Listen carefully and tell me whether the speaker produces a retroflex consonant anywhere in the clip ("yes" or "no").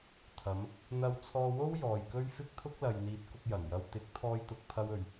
no